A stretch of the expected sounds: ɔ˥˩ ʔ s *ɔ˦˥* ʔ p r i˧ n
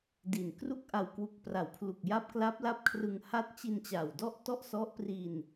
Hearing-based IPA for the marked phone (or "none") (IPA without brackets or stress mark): ɔ˦˥